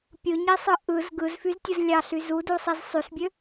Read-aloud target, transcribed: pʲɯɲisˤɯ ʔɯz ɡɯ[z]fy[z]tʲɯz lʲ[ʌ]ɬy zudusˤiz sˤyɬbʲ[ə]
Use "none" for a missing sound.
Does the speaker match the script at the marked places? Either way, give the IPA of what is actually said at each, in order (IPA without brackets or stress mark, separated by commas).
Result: z, z, ɑ, ø